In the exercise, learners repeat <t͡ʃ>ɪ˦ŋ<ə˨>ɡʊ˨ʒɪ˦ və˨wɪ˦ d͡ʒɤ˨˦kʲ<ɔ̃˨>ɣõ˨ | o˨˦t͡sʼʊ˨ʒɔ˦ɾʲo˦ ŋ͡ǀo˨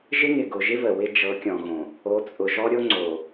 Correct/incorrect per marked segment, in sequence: incorrect, incorrect, correct

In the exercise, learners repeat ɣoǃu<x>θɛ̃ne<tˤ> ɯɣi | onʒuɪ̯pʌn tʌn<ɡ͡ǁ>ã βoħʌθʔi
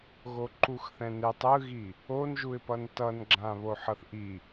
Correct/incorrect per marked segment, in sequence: correct, correct, correct

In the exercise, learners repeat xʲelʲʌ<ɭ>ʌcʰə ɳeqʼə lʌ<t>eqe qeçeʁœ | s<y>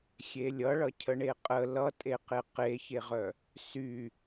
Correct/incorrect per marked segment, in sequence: correct, incorrect, correct

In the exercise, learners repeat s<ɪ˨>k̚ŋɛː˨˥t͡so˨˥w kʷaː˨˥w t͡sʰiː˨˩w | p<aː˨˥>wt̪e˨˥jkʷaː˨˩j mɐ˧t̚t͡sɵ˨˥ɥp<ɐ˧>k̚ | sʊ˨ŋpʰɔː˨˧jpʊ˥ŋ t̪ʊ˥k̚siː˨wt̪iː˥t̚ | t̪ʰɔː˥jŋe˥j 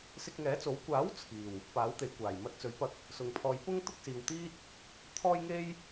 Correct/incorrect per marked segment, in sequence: incorrect, correct, correct

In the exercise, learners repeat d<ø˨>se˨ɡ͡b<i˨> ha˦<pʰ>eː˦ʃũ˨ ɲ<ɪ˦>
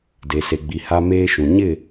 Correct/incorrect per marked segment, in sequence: incorrect, correct, incorrect, incorrect

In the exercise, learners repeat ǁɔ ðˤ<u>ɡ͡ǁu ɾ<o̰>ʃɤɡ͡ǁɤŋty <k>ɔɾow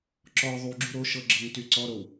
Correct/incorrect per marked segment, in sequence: correct, incorrect, incorrect

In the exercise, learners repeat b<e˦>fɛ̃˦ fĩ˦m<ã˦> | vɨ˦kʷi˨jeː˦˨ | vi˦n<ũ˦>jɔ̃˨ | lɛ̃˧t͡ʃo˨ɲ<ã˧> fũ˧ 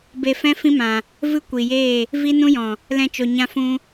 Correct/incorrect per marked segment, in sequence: incorrect, incorrect, correct, correct

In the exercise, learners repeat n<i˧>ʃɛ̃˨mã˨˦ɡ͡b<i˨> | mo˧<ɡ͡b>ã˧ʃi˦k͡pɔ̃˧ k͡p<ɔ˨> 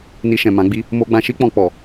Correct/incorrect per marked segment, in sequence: correct, incorrect, correct, correct

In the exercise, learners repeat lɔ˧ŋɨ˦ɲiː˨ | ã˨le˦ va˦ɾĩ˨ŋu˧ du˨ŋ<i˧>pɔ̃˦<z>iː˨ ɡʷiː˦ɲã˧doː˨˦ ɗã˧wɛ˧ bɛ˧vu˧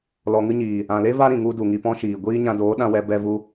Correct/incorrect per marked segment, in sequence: correct, incorrect

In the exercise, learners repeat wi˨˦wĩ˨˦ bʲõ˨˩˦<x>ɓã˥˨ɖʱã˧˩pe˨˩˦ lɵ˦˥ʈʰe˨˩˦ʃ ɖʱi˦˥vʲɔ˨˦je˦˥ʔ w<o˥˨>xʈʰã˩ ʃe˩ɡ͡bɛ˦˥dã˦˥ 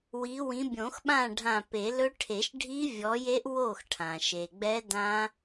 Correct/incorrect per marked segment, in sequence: correct, correct

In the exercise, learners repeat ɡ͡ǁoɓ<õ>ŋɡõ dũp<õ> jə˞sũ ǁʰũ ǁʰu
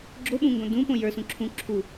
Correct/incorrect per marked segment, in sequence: incorrect, correct

